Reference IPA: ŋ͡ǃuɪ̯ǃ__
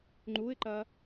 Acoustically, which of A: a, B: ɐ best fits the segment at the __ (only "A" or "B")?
B